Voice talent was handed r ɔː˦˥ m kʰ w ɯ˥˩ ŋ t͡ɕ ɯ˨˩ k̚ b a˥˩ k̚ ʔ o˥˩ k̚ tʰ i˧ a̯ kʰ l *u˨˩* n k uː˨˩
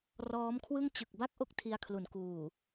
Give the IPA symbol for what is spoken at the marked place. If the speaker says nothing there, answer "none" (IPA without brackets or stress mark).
u˨˩